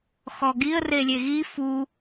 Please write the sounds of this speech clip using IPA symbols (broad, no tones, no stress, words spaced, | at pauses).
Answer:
xɔɡiə̯relʲe ɣi fu